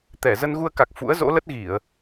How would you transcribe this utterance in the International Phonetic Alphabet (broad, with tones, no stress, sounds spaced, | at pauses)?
t̪ ɛ˧˩ z ə˧ n ɣ u˧ ə̯ k a˨˩ k̚ f ṵ˧˥ ə̯ z o̰˧˥ l ə˦˥ t̚ ɣ i˧˩˨ ə̯